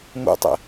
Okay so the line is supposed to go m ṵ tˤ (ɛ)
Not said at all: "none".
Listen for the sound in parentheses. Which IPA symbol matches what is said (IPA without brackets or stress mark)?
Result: ɛ̰